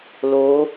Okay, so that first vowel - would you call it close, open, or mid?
mid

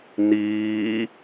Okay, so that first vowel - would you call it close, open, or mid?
close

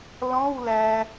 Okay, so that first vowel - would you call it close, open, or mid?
mid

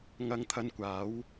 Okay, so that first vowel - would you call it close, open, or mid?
open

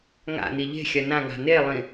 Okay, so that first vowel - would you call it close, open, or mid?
open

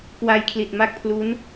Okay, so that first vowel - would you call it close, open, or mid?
open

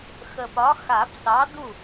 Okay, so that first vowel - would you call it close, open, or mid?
mid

